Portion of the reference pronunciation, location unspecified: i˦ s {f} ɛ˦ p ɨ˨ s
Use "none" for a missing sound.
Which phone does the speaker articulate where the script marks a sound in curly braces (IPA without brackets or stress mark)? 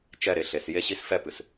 f